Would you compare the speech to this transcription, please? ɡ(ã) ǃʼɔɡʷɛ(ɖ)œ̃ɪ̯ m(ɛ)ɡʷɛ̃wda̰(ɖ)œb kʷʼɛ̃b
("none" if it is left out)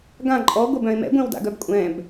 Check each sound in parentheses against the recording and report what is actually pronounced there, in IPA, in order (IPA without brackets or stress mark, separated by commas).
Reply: ã, b, ɛ̰, ɡ